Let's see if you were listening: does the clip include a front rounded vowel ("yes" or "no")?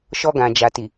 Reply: no